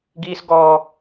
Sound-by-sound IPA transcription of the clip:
ɡ iː˦ s ɡ ɔː˦

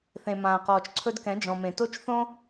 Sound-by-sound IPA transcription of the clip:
θ ẽ˨ m ãː˨ q ɔː˨ t͡ʃ ǀʰ ɵ˧ d k ɛ̃˨˦ d͡ʒ ɔ̃˨ m ẽ˨ t o˦ t͡ʃ θ õ˦

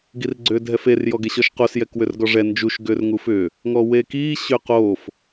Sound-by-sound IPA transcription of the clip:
ɡ i r ɡ͡ǀ ʏː dʱ ɛ f e r j ɔ ɡ e ɕ ɔ ʃ q o s j ɛ k w ʏ r ɡ ɔ ʐ ɛ n d͡ʒ u ʃ ɡ ʏː r ŋ u f ʏː | ŋ ɔ w eː k iː ɕ ʏ q oː f

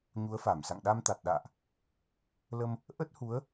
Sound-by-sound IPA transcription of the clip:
ɲ u˨˦ ə̯ f a˧˩ m s a̰˧˨ ŋ ɗ a˧ m t̪ a˨˩ t̚ ɗ a̰ː˧˨ ʔ | l ə˧ m | ʔ ə˦˥ t̚ h u˨˦ ə̯

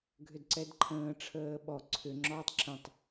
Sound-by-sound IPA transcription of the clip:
ɡʱ ʏ d ǀ ɛ d ǃʰ ə̃ː ʈ͡ʂʰ əː ɓ ɔ ǀʰ ʏ ŋ͡ǁ ɔː tˤ ǁ ə̃ tˤ

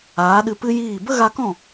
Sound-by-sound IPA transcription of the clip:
aː˨˦ ɗ ɨ˧ p ɨ˦ j iː˦˨ b ə˦ ɣ a˧ k ɔ̃˦˨

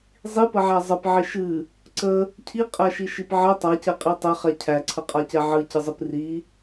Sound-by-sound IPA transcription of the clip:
zˤ i p ə ʕ æ zˤ ə p ʕ i ʃ ɨ | ǀ ə | cʰ i qʼ æ ʃ i ʃ i p ʕ ə tˤ a c ɛ qʼ i tˤ ɛ χ ɛ cʰ æ ǀʰ ə qʼ a c ɛ ʕ ɨ c ɨ zˤ ɨ p r i

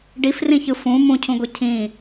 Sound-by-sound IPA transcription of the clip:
ɖ i f r ĩ ç ɯ f ũ m ũ cʰ ũ ɡʷ i cʰ ĩ

